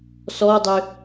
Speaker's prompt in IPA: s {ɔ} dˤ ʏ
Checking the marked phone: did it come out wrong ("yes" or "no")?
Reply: no